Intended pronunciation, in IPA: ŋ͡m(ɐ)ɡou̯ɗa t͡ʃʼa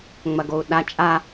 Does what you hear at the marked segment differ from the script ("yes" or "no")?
no